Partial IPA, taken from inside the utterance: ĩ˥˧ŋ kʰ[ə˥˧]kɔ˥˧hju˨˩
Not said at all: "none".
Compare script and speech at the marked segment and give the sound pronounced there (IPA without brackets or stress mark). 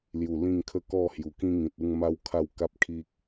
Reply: ə˦